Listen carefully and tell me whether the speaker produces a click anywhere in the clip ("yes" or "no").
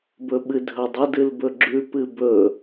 yes